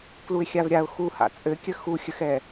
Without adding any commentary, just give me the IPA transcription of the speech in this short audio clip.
k l u ɪ̯ xʲ a v ɾʲ a ʊ̯ x u h a̰ t͡sʼ ɘ kʲ ə x u xʲ ə x ɛ

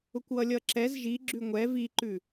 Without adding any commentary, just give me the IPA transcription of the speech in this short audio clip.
ʊ kʷ w ʌ lʲ ʌ ǁ ɛ z ʒ i ɡ͡ǁ ʉ ŋʷ ɛ v i ǃ ʉ

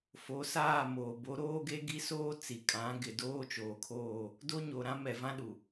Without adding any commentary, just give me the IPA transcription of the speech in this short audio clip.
f o˨˦ s aː˦˨ m oː˨ b o˨˦ ɾ oː˦ ɡ e˦ ɡ i˦ s oː˦ t͡s i˨ kʼ ã˨˦ ɡ ɪ˨ d oː˦ t͡ʃ oː˨ kʰ oː˦˨ | d o˦ ɲ o˨ ɾ ã˦ m ɛ˨ v ã˦ ɗ u˨

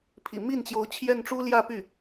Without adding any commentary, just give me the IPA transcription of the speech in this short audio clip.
pʰ ḭ˨˩ m i˥˩ n t͡ɕ j o˧˥ ʊ̯ t͡ɕʰ j ɛ˥˩ n ʈ͡ʂ u˥ l j ä˥˧ p y˥˩

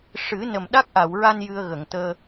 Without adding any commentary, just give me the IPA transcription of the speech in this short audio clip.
ʂ ɨ˨˩˦ n ə˨˩ m ɗ a˦˥ k̚ ʔ a˨˩˨ w ɹ a˧ n j ɨ˧ ə̯ ɣ ə˨˩˨ ŋ t̪ əː˧

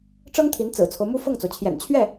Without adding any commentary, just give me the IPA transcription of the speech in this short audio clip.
ʈ͡ʂ ɤ˥ ŋ t̪ʰ i˧˥ n t͡s ɹ̩˨˩ t͡sʰ o˦ ʊ̯ m u˥ f ɤ˥˩ ŋ t͡s o˩ ʊ̯ t͡ɕʰ j ɛ̰˨˩ n t͡ɕʰ ɥ ɛ˥˩

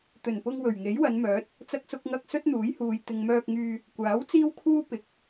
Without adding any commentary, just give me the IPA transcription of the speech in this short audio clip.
t̪ ɵ˨˩ n p ʊ˧ ŋ w ɵ˨˩ ɥ ŋ e˨˥ j w ɐ˨˧ n m œː˨˥ t̚ | t͡s ɐ˧ k̚ s ʊ˧ k̚ ŋ ɐ˧ k̚ s ɵ˥ t̚ n̪ uː˨˥ j h uː˨ j t̪ ɪ˨ ŋ m œː˧ k̚ ŋ yː˧ | kʷ aː˨˥ w t͡s iː˥ w kʰ uː˥ p ɪ˨˥ k̚

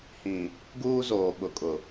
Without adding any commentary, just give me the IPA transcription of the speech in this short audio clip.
h ĩ˨ | ɡ uː˦ z oː˨ ɓ ʊ˨ kʼ ʊ˨

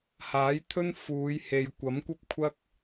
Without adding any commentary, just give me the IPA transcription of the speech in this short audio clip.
h aː˨˥ j t̪ʰ ɵ˥ n f uː˨˧ j h e˨ j kʷ ɐ˨˥ m kʷ ɐ˥ p̚ kʷʰ ɐ˥ k̚

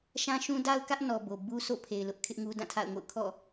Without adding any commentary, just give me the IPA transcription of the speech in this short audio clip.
ʃ ã˦ ʃ ũ˦ d a˦ ʊ̯ k ä˦ ʔ n ɔ˨ b o˨ b u˦ sʰ o̰˦˨ pʰ e˨ ɪ̯ l ʊ˦ ʔ kʰ ɪ˦ ʔ ŋ u˦ d ã˦˨ tʰ a̰˦˨ ʊ̯ ŋ o̰˦˨ ʊ̯ kʰ ɔ̰˦˨

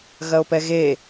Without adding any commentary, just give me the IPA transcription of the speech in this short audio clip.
ɣ ɐ o̯ p ɛ ɣ e

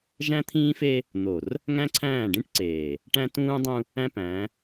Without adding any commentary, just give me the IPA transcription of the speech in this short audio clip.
ʒ æ̃˦ t̪ʰ ĩː˦ f e˦ | n̪ o˨ r | ŋ æ̃˦ ǀʰ æ̃ː˦˨ ɖ ĩ˦ ʈ ǀ eː˨ | ʈ æ̃˦ t ũː˦ dˤ ũ˦ | æ̃˦ p æ̃˨˦

